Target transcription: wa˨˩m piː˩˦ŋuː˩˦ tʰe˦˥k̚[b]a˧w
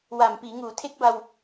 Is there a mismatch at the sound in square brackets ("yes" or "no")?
no